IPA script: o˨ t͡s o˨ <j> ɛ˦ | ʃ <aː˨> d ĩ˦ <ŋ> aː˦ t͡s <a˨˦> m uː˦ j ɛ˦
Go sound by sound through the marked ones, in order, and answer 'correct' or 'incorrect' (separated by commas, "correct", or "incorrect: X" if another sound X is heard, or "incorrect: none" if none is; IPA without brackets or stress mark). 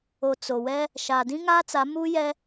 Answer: incorrect: w, correct, correct, correct